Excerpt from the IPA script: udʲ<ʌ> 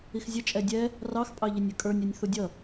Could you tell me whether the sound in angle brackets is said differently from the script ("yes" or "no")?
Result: no